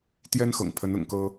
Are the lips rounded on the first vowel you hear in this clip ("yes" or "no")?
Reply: no